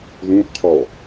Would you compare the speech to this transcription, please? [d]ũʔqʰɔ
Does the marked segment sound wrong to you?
yes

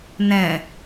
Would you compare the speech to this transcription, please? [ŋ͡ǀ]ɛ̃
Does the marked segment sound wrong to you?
yes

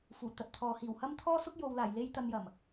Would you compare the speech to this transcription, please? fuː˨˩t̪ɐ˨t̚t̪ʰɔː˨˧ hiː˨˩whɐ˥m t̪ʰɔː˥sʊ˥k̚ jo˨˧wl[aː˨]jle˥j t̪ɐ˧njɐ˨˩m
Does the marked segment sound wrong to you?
yes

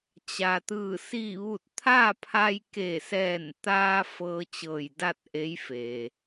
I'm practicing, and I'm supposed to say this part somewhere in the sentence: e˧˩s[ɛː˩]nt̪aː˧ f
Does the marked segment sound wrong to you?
yes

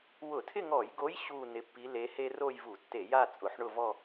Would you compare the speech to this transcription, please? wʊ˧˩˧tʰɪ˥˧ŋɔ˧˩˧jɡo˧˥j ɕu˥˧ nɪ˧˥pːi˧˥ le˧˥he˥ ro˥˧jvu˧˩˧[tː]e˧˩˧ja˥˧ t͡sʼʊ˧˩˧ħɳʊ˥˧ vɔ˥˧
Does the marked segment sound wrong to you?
no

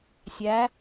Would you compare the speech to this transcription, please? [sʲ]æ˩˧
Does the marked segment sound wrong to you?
no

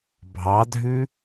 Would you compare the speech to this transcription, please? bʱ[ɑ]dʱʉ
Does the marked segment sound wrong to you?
no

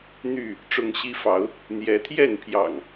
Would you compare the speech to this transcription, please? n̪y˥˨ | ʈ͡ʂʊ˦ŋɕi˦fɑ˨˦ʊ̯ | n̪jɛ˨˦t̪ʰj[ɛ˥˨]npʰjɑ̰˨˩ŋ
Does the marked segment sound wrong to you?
no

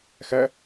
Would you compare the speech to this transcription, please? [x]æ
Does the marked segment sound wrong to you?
no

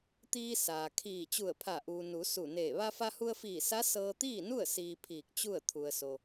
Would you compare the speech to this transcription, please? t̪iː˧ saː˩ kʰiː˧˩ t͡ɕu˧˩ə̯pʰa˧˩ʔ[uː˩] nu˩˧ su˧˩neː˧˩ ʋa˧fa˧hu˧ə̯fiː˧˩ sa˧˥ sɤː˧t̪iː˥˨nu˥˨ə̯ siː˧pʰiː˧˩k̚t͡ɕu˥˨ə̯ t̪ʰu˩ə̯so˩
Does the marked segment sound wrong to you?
no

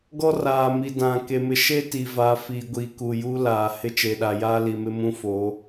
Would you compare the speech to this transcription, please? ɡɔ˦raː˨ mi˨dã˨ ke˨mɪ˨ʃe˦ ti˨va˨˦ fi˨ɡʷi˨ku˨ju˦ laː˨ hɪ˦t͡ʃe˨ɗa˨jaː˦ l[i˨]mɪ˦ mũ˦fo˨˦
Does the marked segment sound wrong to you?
no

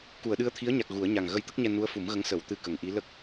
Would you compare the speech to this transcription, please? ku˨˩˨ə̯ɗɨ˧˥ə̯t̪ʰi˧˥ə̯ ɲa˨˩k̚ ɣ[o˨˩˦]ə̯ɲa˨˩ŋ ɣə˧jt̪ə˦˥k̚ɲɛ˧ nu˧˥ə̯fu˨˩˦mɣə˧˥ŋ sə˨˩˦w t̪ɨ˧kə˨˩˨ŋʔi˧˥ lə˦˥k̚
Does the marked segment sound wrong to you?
yes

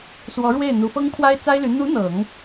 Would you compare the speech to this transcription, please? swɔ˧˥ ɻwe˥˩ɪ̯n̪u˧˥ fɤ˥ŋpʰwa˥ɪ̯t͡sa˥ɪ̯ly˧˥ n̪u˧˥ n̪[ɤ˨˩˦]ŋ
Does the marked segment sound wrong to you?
no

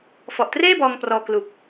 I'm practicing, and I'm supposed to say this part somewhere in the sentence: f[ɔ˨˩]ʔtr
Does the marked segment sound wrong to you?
no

